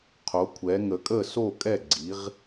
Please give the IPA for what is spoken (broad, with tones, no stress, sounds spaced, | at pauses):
qʰ o˩˧ kʷʰ ɛ˩˧ ŋ ə˩˧ kʼ ə˥˩ s o˥˩ kʼ ɛ˥˩ ɡ͡ǀ i˩˧ ʁ